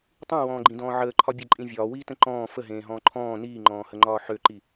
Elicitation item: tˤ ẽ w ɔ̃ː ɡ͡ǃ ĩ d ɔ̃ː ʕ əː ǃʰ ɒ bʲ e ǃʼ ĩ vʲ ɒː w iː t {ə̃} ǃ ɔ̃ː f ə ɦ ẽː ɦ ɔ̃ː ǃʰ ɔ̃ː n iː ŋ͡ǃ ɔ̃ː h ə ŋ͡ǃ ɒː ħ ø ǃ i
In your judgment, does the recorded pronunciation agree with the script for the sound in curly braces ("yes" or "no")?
yes